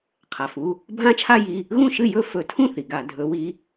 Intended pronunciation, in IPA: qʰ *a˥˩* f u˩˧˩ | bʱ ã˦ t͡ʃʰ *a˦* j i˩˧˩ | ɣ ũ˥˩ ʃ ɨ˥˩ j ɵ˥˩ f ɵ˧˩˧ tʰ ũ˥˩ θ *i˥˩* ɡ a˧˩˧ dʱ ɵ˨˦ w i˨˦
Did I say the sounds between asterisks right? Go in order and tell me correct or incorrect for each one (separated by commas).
incorrect, correct, incorrect